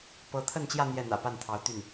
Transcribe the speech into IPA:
p ɤ˧˥ t̪ʰ ə˥˧ n t͡ɕ j ä˥˧ n̪ j ɛ˥˩ n̪ ä̰˨˩ p a˥˩ n t̪ʰ ɑ˧˥ ʊ̯ t̪ y˥˩ n

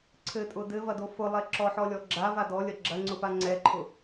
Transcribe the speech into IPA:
ǀʰ ɘ tʼ ʊ d ɘ v ɐ d o f ʊ lˠ ɛ ǁ ɔ ħ ɔ lʲ ɔ ɡ͡ǁ a v a d ɔ lʲ ɐ ɡ͡ǁ ɐ ŋ͡ǀ ʊ p a ŋ͡ǀ ɛ ǃʰ ʊ

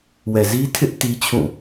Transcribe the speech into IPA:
w ɛ˨ z i˦ tʰ ɪ˦ ʔ t i˦ t͡ɕʰ ũ˦˨

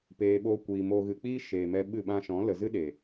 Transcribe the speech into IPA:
p eː˨ ɓ oː˧ kʷ iː˨ m oː˨ ɣ ɨ˨ k͡p iː˦ ʃ eː˨ m ɛ˧ ɓ ɨ˦˨ ɓ ã˧ ʃ ɔ̃˨˦ l ə˨ z ɨ˦ ɗ e˨

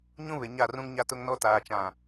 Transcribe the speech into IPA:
ɲ ũ˦ β ɪ˨ ɲ a˦˨ r ũ˦ ŋ ɲ a˦ t ʊ˦ ŋ n ɔ˦ t aː˨ t͡ʃ ã˨

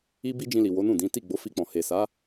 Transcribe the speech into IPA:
i˦ b i˦ d͡ʒ ĩ˧ l i˨ w o˨˦ n ũ˦˨ d ĩ˨˦ t i˦˨ ɡ͡b o˨˦ f i˧ k͡p ɔ̃˨ h e˨ s a˨˦

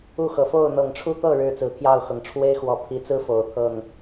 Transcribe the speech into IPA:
u˥˨ x ɤ˨˩ f o˥˨ ʊ̯ n̪ ɤ˨˩ ŋ ʈ͡ʂʰ u˦ t̪ ɤ˥˨ ɻ ɻ̩˥˨ t͡s ɹ̩˨˩ t̪ʰ j ɑ˥˨ ʊ̯ x ɤ˩ ŋ ʈ͡ʂʰ w e˦ ɪ̯ x w ɔ˨˩ pʰ i˨˦ t͡s ɹ̩˦ f o˨˩ ʊ̯ t̪ʰ ɤ˥˨ ŋ

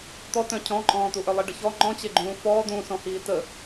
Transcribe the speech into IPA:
t̪ ɔ t œ̃ cʰ ɔ̃ ǃʼ ɔ̃ː t̪ u ʔ œ lˠ i ɖ ə ç ɔ ŋ͡ǃ ɔ̃ t͡ɕ e ɡ͡ǃ ũː f ɔː d̪ ũː s ɔ̃ h iː t ə

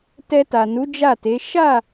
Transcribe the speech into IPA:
t ɛ˧ t a˨ n u˨˦ d͡ʒ a˦˨ t e˨˦ ʃ a˦˨

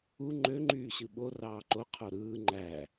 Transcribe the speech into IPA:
u ŋ͡ǃ ø ŋ͡ǃ yː ɕ ɯ ɓ o r ɑː ǃ o qʰ o ɾ ɯː ŋ͡ǃ æ

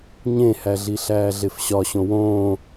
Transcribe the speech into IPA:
ɲ ẽ h æ ɮ i ɬ æː ɮ e f ɕ ɒ ɕ õ w õː

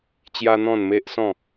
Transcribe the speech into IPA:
t͡ɕ j a˦ n̪ ɔ̃˥˧ n m e˦ ʔ s ɔ̃˥˧

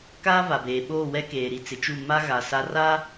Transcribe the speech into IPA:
k aː˦ v a˨ b eː˨ ɓ oː˦˨ w ɛ˦ k eː˨ ɾ i˨ t͡s ɪ˨ t͡ʃ u˦˨ m a˦ ɣ a˨ s a˦ r a˦

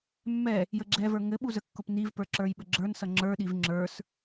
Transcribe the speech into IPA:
mː ɛ | j ə ɡ͡ǁ ɛ v ə˞ ŋ ɘ ɓ u z ə kː ʊ p n i v p ə˞ ǁ ə˞ j ɓ ɘ ɡ͡ǁ ə˞ n s ʌ ŋ͡ǁ ə˞ ɗ i v ŋ͡ǁ ə˞ s

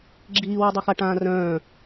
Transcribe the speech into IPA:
ɡ͡ǁ iː w i dˤ o x a ʈ ãː r œ̃ː

